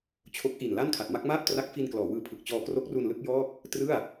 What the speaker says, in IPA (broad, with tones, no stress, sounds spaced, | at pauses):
t͡ɕʰ o˦˥ k̚ ʔ i˨˩ n l a˥˩ n kʰ a˨˩ t̚ m a˥˩ k̚ m aː˥˩ p̚ t r a˦˥ k̚ f i˧ n k l ɔː˩˦ w ɯː˦˥ pʰ ɯ˨˩ k̚ t͡ɕ ɔː˧ k r o˦˥ k̚ r u˧ n l ɯ˥˩ k̚ j ɔː˥˩ k̚ | t r ɯ˥˩ a̯